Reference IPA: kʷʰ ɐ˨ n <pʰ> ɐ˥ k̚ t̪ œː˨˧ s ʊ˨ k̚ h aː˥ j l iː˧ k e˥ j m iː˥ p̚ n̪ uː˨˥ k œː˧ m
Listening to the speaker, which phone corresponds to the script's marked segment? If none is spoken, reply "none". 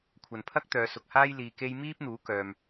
pʰ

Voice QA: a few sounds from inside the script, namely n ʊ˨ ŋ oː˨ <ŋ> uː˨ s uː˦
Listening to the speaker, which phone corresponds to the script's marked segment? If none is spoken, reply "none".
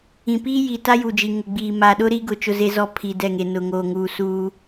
ŋ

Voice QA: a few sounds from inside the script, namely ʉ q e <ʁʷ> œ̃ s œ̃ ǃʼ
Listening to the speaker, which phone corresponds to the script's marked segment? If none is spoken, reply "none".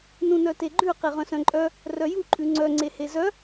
ʁ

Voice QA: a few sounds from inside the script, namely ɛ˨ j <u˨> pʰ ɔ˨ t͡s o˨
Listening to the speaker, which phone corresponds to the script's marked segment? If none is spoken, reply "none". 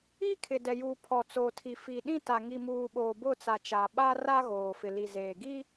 uː˨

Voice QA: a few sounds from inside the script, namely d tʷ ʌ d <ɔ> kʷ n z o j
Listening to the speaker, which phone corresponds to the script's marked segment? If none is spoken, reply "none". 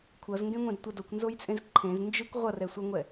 o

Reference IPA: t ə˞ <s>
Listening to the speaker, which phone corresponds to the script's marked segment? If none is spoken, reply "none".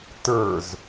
z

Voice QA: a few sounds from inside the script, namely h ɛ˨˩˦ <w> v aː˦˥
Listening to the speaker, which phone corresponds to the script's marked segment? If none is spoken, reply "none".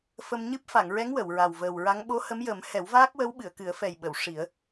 w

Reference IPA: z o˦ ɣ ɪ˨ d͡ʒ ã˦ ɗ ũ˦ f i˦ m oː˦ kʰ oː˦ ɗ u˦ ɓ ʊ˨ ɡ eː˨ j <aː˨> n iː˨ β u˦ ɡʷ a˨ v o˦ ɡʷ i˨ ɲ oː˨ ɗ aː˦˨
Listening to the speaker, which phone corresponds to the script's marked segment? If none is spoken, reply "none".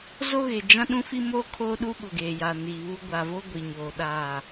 aː˨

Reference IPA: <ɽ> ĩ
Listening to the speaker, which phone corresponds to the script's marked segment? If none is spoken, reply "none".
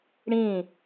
ɽ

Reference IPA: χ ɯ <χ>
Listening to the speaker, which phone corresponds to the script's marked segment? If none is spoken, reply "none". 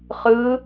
none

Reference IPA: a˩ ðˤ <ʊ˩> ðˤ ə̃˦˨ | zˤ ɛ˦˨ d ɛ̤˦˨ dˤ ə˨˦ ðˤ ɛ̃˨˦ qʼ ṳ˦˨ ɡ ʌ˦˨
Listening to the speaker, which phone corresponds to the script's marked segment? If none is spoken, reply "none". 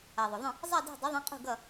ʊ˩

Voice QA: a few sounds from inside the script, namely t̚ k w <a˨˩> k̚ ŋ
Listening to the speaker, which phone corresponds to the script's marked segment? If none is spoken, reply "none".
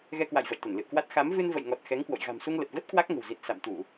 a˦˥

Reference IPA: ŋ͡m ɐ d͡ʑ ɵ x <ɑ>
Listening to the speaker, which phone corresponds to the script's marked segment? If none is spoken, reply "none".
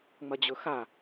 a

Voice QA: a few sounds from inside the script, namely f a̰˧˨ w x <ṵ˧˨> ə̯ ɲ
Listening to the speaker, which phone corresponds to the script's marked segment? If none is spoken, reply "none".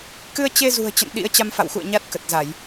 ṵ˧˨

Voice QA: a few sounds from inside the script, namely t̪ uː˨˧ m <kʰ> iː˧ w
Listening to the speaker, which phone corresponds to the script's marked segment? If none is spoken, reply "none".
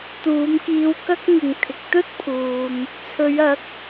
k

